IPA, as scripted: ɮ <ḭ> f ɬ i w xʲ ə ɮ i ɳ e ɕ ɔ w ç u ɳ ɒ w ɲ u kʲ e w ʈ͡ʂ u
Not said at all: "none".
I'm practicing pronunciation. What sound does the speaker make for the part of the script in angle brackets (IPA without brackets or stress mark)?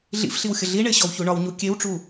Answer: ḭ